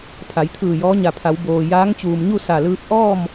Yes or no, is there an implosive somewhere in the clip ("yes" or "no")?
no